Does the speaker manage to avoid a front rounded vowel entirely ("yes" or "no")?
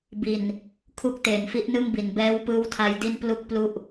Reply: yes